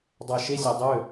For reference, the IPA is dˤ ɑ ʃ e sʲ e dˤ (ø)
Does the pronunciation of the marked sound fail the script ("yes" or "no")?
no